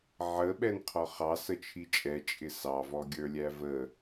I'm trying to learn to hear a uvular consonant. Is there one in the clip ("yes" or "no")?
yes